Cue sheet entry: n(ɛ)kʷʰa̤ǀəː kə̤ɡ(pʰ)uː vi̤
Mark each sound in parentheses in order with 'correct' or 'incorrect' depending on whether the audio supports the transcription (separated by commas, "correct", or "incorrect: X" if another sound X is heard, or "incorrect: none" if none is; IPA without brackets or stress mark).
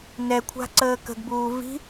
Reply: correct, incorrect: b